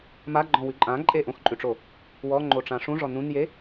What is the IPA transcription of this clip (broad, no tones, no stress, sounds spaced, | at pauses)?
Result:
m a ɡ͡ǃ ɔ̃ w ʉ ǃʼ ã ǃʼ e ʔ õ x ǃʼ ʉ ʈ͡ʂ o | w ɔ ŋ͡ǃ o ʈ͡ʂ ã ʂ ũ ʐ ɔ n ũ n j e